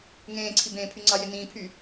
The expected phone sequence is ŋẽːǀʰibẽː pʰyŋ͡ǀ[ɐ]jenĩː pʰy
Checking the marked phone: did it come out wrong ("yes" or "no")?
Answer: yes